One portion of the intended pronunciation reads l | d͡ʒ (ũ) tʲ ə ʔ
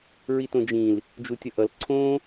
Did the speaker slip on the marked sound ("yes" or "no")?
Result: yes